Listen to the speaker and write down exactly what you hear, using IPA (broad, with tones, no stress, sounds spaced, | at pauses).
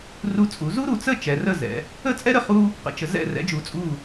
r u˧ t͡sʼ u˩˧ z u˥ ɾ u˩˧ t͡s ə˥˧ t͡ʃ ɛ˩˧ r ə˥˧ z ɛ̰˩˧ | ə˥˧ t͡sʼ ɛ˥ ɾ ə˧ χ u˥ | q ə̰˩˧ t͡ʃ ə˩˧ z ɛ̰˧˩ r ɛ̰˩˧ d͡ʒ u˩˧ t͡sʼ u˧˩